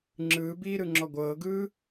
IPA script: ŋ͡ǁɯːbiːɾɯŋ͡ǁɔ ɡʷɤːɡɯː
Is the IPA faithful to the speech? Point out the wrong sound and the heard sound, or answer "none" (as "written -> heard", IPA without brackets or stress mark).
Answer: none